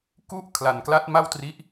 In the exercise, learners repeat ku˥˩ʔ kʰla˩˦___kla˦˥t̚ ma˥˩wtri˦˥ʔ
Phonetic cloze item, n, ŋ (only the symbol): n